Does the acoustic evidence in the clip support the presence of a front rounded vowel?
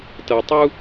no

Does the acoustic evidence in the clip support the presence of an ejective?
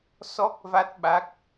no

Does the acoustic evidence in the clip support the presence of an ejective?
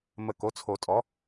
yes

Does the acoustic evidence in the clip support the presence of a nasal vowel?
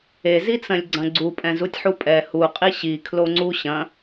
yes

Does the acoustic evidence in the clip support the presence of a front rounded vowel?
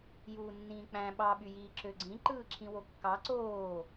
yes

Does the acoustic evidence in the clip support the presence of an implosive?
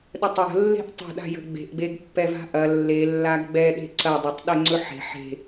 yes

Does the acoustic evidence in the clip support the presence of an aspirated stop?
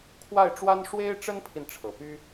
yes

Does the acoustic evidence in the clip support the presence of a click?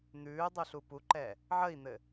yes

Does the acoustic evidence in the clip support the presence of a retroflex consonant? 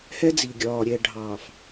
yes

